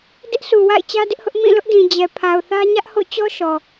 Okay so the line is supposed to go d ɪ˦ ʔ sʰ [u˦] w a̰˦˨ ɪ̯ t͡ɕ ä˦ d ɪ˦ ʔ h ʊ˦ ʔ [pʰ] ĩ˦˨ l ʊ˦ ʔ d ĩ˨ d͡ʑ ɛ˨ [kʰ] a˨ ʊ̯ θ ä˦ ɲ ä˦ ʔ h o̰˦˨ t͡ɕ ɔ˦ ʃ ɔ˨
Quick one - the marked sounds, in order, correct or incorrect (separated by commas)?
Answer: incorrect, incorrect, incorrect